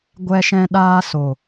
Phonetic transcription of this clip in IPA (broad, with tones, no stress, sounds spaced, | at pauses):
ɡʷ ɛ˦ ʃ ɛ̃˦ ɗ aː˦ s o˨